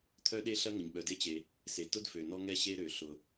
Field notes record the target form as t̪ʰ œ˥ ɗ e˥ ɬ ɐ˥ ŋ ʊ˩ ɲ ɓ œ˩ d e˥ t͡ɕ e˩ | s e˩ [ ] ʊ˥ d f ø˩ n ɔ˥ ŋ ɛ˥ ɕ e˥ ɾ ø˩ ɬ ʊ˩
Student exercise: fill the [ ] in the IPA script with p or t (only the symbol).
t